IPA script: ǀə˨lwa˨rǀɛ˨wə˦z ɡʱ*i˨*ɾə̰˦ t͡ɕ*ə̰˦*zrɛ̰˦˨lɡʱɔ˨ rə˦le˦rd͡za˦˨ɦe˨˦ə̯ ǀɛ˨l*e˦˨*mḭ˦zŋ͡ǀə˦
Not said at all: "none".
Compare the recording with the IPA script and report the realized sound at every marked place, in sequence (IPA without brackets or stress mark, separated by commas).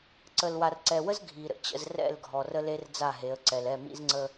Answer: i˨, ə̰˦˨, ɛ˦˨